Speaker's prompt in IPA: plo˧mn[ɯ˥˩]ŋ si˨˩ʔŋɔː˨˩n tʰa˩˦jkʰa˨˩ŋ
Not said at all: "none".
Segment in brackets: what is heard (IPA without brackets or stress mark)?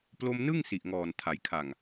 ɯ˥˩